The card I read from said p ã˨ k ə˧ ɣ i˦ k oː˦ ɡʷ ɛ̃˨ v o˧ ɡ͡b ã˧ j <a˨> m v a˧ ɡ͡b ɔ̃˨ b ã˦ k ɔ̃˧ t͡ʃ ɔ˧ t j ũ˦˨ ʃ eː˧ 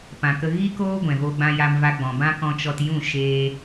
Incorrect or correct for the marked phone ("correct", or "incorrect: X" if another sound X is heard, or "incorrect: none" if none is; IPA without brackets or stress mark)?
incorrect: a˧